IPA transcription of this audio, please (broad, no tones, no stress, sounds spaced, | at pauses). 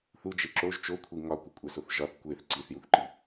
θ u d͡ʒ e ǁ o ʒ t͡ʃ o kʷʰ i ŋ ɒ kʷ i kʷʼ æ s o θ ʒ ɒ θ kʷ e θ ǀ i θ j u θ ǃ i